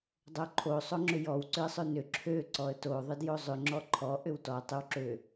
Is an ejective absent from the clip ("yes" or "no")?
yes